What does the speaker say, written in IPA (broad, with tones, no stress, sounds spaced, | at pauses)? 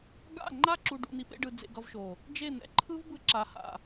ɡ a̰˦˨ ŋ͡ǃ a˦ ǁ u˨ ɖ ṵ˨ n̪ i˨ p ḛ˧ ɖ ɯ˨ d͡z ḛ˧ ɡ ʌ˧ v ʃ o˨ | d͡ʒ e˦˨ n̪ ɛ̰˨ ǃʰ ɯ˦ v b ɯ˧ ǁ a˨ h a̰˨